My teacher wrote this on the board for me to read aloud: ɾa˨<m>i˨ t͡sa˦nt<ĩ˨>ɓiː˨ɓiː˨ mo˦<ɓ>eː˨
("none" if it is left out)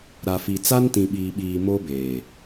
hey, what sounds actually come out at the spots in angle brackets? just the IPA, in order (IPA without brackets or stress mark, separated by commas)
f, ĩ˨, b